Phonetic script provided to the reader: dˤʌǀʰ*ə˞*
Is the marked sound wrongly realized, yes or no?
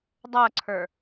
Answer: no